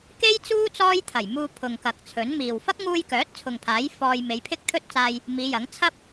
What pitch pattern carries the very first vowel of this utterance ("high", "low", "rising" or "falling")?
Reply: high